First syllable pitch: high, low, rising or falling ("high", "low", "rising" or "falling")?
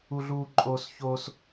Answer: high